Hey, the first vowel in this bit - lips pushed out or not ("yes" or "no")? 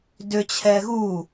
yes